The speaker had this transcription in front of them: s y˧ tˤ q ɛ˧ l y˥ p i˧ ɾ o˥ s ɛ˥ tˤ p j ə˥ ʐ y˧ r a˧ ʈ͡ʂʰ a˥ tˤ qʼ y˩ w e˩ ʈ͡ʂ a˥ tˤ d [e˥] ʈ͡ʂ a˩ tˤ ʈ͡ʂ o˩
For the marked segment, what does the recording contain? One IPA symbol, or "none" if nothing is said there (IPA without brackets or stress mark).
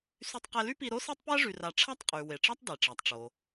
e˩